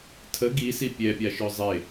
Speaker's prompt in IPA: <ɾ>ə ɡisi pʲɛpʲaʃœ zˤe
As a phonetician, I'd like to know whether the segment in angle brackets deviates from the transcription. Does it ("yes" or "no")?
yes